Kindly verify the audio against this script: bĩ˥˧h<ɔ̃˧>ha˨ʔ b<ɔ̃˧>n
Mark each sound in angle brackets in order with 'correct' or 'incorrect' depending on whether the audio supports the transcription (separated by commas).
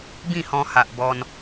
correct, incorrect